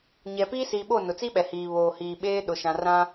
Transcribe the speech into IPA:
ɲɛ˨piː˦siː˨ɓo˦˨ nʊ˨t͡si˦ ɓɛ˨hiː˨ βoː˨hiː˨ ɓeː˦ɗʊ˨ ʃã˨rã˦

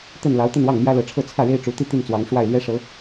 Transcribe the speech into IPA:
t̪ə˥˩n lɑ˧˥ʊ̯t̪ə˥˧nwɑ˥˩ŋ mjä˥lɤ˧˥ʈ͡ʂʰɤ˥˧ t͡sʰä˥˩ɻe˥ɪ̯ ʈ͡ʂu˧˥t̪i˥˧ t̪i˥˩nt͡swɑ˧˥ŋʂwa˥˩ɪ̯lɥɛ˥ ʂɤ˧˥

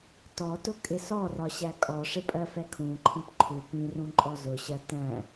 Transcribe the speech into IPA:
tɔtʊ kʼɪsɔrɒ ɕækʼɔʂɪ pʼɜfɛkʰũǃʰĩp ǃʰu pĩrũ ǃʼɔzʊɕɜ tæ̃

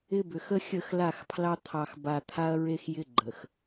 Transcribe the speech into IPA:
ɪ˦bʏ˨x ə˦xʲə˦˨x la˦˨xpʰlɑ˦ t̪ʰɑ˨xba˨ t̪ʰa˦ɐ̯ɹe˦xjɪ˦ ɡ͡ǃə˨x

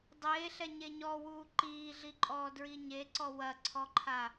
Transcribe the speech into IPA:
dˤeːɬɛ ɲeɲɔwuː ǃiːɮiǃʼɔː dɹiɲeǀɔ wɐǀʰɔǃʰa

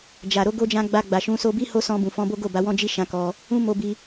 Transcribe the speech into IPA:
d͡ʒa˨ ɾo˨˦ɡo˧d͡ʒã˧ ɡ͡ba˧ɡ͡ba˨ʃũ˨˦ so˧bi˦ ho˦sɔ̃˧bũ˨fɔ̃˨˦ bo˦ɡo˦˨ba˨˦ wɔ̃˧d͡ʒi˧ ʃã˧kɔ˧ | ũ˦mo˧bi˧

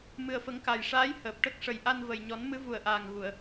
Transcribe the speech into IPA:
mɨ˨˩ə̯fə˨˩˦ŋka˨˩jʂaː˧˥j həː˨˩p̚ʈə˦˥k̚ ʂə˨˩jʔa˧nvə˨˩j ɲɔ˨˩˦nmɨ˧˥ vu˨˩ə̯ʔaː˨˩ŋɣu˨˩˨ə̯

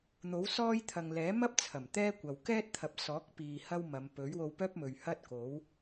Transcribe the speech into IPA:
n̪o˨˥wsɔː˥jt̪ʰɐ˨ŋ lɛː˨˥mɐ˥p̚ t͡sʰɐ˨˩mt̪ɛː˥kʷɐ˨w kɛː˥t̚t̪ʰɐ˨p̚sɔː˨˥k̚piː˨ hɐ˥wmɐ˨˧m pɵ˨˥ɥwo˧wpœː˥p̚mɵ˨ɥ hɐ˥t̚ko˨˥w

